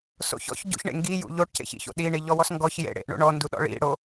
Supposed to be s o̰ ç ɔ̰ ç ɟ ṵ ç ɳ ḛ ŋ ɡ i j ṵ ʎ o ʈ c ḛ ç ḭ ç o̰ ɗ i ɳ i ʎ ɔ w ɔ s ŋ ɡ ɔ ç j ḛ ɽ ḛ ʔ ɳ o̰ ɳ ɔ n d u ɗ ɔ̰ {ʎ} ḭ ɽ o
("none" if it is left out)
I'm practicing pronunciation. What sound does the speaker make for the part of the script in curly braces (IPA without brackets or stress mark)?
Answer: ɭ